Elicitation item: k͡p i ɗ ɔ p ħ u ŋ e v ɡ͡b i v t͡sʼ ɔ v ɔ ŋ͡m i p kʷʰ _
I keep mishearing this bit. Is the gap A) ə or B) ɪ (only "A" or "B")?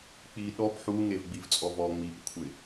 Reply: B